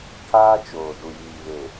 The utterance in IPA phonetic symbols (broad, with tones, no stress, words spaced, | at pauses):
kʰaː˦t͡ʃoː˨ du˨jiː˨βe˨